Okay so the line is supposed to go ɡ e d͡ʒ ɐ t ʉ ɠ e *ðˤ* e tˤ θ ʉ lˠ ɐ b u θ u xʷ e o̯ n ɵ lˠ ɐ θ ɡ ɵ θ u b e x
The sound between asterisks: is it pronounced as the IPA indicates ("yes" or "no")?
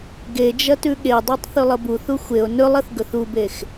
no